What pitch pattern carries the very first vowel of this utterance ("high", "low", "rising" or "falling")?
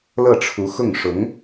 falling